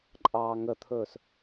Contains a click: yes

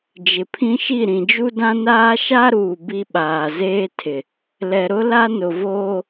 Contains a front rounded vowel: no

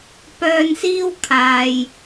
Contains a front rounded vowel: yes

